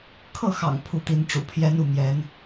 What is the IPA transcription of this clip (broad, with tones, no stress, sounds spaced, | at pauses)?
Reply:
kʰ ɤ˥˩ x ɑ̰˨˩ ŋ pʰ u˥˩ t̪ i˧˥ n ʈ͡ʂ ṵ˨˩ pʰ j ɛ˥ n u˥˩ m j ɛ˧˥ n